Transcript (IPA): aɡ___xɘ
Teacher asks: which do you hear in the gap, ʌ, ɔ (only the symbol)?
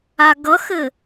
ʌ